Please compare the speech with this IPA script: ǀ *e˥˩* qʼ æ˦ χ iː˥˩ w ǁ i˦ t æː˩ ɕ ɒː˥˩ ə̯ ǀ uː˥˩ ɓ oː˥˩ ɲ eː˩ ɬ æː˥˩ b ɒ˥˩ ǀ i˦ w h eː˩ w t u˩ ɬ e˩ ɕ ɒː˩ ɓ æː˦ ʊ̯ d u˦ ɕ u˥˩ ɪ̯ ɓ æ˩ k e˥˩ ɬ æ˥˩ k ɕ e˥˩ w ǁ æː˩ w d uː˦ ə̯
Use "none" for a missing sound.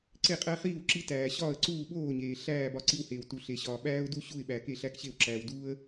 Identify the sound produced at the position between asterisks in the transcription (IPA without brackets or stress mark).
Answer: e˥˩